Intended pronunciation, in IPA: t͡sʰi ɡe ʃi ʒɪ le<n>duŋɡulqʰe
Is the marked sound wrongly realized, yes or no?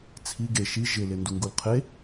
no